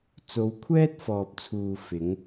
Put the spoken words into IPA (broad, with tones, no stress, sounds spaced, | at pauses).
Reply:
t͡s o˨˧ w kʷʰ ɛː˥ t̚ f ɔː˨ p̚ t͡sʰ uː˨ f ɪ˨˥ ŋ